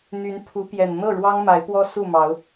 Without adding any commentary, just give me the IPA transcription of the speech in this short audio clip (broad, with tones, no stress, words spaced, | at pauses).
n̪y˨˦npʰu˨˦ pjɛ˨˩n n̪ɤ˥˨ɻwɑ˦ŋ ma˨˦ɪ̯pwɔ˦ su˥˨mɑ˨˦ʊ̯